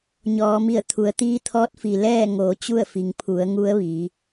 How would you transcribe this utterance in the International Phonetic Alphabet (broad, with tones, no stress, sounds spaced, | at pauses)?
ɲ ɔː˩˧ m i˧˩ ə̯ t̪ʰ u˩˧ ə̯ t̪ iː˧˥ t̪ʰ ɔː˧˥ t̚ f i˩ l ɛː˥˨ ŋ oː˩˧ t͡ɕ u˥˨ ə̯ f i˩ ŋ pʰ u˩˧ ə̯ ŋ u˧˥ ə̯ ʋ iː˩˧